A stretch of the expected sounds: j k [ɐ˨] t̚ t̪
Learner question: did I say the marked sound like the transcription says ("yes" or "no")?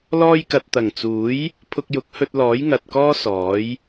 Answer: yes